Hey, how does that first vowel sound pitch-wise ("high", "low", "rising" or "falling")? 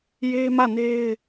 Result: high